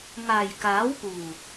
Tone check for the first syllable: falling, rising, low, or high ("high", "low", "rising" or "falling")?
low